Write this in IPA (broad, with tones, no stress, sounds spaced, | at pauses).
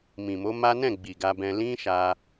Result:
m ĩ˨ m o˨˦ m a˦ n ɛ̃˦˨ ɡ͡b i˨ ɡ a˧ b ɛ̃˧ l ĩ˦ ʃ a˦